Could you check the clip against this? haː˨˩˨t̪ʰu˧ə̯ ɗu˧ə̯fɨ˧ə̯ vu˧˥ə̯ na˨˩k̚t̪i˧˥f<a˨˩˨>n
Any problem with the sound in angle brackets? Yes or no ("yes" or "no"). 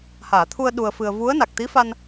yes